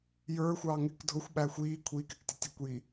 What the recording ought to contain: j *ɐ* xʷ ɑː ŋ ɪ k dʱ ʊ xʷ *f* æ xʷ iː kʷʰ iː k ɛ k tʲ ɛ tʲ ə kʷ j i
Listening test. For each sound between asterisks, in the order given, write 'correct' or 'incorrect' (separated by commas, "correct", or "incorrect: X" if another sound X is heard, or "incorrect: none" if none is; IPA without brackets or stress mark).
incorrect: ə˞, incorrect: ɓ